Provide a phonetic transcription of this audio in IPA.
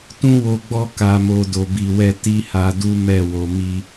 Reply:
t ũ˦ w o˧ ɡ͡b ɔ˦ k a˧ m o˧ d o˧ b i˧ w ɛ˦ t i˦ h a˧ d u˦ m ɛ˦˨ w o˧ m i˦

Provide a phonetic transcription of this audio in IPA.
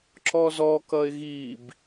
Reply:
ǁ ɔ z ɔ k ʌ ɪ̯ ɣ i b

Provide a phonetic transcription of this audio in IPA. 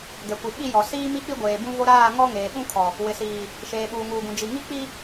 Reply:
ɡ ɛ˨ kʷ i˨ ɓ i˦˨ j ɔ˨ s iː˦ m i˦ k͡p i˦ ɡʷ eː˨ b ũ˦ v o˦ ɾ aː˦˨ ŋ ɔ˦ ŋ eː˨ ɓ ũ˦ kʰ ɔ˨ | w ɪ˨ s iː˨ | ʃ eː˨ ɓ uː˨ ŋ uː˨ ɡ ũ˨ d͡ʒ i˨ ŋ i˦ k͡p i˦

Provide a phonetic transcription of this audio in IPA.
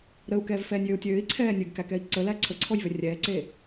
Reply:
ɾ ə u̯ k ɛː v f ɛː nʲ j ø u̯ tʲ øː i̯ ǀʰ ɛː nʲ ɨ ɡ k æ k ɛ i̯ ǀ ə l æ ǀʰ ə ǀʰ ɔ j v ʏ rʲ ɛː ǀ eː

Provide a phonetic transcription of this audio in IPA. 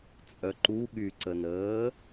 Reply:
t͡sʼ œ ǃ u ɠ y ǀ ə n əː

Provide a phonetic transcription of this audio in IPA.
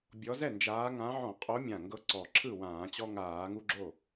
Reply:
bʲ ɔ˨˦ z ɛ˥˩ n d͡ʒ aː˨˦ ŋ ã˨˦ ʕ ɔ̃˧˩˧ qʼ o˨˦ mʲ ã˨˩ ŋ ɡ ɤ˨˦ ǀ ɔ˨˩ ǁʰ ɯ˥˩ w ãː˧˩˧ t͡ɕ ɔ˦ ŋ aː˧˩˧ ŋ u˦ ɡ͡ǁ o˥˩

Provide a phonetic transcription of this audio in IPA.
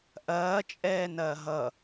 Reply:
ʔ ɐː t͡ʃʼ ɛː n ɐː ɦ ʌ

